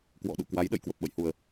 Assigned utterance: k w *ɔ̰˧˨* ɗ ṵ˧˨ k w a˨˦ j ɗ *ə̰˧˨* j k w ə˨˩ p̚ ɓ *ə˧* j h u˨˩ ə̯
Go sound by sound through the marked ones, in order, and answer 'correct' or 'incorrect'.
correct, correct, incorrect: ə̰˧˨

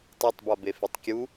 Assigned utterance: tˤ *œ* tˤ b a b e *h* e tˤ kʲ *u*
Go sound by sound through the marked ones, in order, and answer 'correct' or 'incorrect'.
correct, incorrect: f, correct

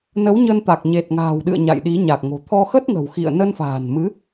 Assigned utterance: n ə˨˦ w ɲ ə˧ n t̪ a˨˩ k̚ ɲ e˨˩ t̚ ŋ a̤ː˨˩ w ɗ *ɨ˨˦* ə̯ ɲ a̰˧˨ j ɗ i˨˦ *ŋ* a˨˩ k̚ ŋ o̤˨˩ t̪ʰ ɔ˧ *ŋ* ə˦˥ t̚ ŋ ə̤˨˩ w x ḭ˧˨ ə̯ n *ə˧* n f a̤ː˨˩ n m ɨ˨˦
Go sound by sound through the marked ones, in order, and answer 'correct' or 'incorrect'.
incorrect: ɨ̰˧˨, incorrect: ɲ, incorrect: x, correct

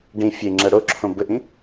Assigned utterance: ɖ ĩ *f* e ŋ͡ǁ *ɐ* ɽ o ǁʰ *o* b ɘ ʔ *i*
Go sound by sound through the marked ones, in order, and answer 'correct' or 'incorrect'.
incorrect: fʲ, correct, incorrect: õ, incorrect: ĩ

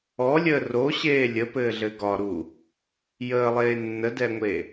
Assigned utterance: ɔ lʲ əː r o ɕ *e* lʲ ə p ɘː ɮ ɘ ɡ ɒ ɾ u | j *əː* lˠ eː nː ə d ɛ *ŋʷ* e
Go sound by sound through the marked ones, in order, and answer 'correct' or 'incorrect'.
incorrect: eː, correct, correct

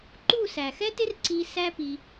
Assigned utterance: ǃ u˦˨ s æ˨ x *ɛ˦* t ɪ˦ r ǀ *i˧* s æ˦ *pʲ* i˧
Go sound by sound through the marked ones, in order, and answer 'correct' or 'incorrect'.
correct, correct, incorrect: p

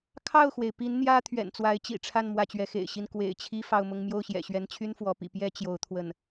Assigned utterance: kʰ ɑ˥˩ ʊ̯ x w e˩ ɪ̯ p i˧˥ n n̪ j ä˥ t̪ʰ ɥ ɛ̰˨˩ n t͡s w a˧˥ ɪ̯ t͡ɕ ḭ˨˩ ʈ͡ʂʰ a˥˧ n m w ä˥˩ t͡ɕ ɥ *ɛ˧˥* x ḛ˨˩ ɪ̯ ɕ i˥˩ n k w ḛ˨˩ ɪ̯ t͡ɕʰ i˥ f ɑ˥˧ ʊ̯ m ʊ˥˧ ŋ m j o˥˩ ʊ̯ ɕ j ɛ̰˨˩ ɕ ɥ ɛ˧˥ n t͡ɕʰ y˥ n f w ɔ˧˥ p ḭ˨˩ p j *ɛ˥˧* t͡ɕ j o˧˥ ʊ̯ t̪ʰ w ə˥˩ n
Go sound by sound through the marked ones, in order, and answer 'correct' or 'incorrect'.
correct, incorrect: ɛ˥

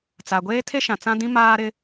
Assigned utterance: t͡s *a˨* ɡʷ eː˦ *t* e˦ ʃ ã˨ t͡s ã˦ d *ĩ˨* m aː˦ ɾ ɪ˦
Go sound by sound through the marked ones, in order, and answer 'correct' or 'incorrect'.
correct, incorrect: tʰ, incorrect: ĩ˦

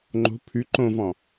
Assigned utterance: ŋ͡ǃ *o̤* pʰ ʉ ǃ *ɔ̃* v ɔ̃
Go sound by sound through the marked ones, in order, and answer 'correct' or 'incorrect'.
correct, incorrect: õ

